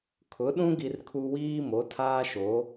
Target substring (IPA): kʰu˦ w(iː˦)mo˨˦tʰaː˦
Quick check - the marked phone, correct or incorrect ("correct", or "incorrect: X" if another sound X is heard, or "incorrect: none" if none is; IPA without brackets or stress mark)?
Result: correct